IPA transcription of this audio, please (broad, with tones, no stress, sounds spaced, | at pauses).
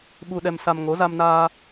ɓ u˧ ɗ ɛ˧ m s a˧ m ŋ o˨˦ z a˧ m n aː˧